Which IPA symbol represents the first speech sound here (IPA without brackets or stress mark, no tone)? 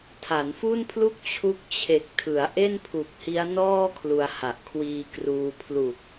tʰ